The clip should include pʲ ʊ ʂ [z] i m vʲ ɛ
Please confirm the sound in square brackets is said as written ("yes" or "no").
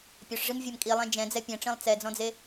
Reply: no